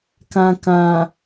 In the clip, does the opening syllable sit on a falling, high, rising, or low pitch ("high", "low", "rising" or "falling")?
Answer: low